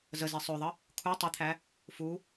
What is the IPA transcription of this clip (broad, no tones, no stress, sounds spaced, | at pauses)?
z ə z e sˤ ø ðˤ ə | kʰ u tˤ ɘ t̪ʰ æ | f u